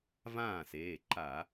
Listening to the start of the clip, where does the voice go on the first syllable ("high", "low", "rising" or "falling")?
falling